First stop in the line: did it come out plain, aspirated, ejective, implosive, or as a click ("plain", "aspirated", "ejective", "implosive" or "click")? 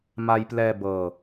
plain